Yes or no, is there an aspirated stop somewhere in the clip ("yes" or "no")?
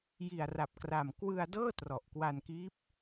no